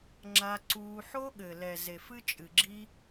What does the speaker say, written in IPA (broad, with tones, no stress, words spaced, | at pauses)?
ŋ͡ǁa˧ǀuː˧ ħo˦ɠɘ˨lɛ˨ ze˨f ɨ˧ t͡ʃʼɨ˨ɡ͡ǁi˦